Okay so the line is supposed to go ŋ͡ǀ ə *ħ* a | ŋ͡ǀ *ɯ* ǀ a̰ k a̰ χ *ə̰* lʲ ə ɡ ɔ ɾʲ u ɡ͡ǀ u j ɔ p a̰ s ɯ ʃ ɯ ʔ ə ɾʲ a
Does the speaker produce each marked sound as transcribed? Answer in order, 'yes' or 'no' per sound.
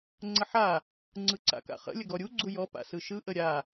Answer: yes, yes, yes

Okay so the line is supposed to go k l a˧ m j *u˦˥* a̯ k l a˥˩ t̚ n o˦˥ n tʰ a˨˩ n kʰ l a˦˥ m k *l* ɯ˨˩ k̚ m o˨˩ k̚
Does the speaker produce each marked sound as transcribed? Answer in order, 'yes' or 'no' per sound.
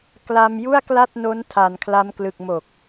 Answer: no, yes

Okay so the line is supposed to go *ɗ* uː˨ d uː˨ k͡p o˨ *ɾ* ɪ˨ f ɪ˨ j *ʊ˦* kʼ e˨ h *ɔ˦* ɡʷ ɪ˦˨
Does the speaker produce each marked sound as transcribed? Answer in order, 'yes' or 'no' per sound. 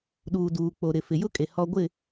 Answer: yes, yes, yes, yes

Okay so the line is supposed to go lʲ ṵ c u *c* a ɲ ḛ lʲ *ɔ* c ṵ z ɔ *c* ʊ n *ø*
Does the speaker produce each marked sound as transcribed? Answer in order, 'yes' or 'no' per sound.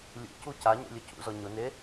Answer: yes, no, no, no

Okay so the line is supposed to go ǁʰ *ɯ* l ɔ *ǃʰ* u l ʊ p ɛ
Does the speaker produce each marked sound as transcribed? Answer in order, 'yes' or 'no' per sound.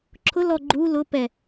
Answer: no, no

